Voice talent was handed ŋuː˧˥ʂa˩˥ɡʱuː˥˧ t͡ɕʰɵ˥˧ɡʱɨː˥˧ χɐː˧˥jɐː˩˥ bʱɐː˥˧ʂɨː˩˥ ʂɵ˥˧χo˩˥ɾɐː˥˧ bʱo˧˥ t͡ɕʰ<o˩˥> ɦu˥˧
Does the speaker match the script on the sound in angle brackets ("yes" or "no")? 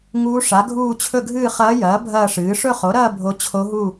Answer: no